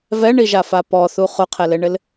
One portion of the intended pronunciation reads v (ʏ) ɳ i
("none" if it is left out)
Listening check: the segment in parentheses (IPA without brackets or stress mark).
ɛ